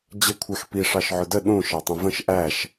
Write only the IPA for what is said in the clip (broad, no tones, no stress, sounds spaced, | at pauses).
d͡ʑ ə kʷʰ æ x p i ʂ ɑ ʃ ʕ ʊ d ə ɗ ũ ʃ ɑ tˤ ə̃ v ə̃ ʃ ʔ æ ʃ